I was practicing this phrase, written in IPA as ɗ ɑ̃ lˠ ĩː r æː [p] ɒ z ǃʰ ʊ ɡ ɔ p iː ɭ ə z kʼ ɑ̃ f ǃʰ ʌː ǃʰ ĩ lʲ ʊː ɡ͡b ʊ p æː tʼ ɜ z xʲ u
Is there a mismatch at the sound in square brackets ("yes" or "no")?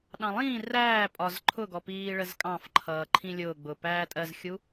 yes